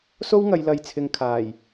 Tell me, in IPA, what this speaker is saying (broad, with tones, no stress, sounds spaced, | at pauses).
s o˥ w ŋ ɐ˨˧ j l ɐ˧ j t͡sʰ ɪ˧ ŋ kʰ aː˨˩ j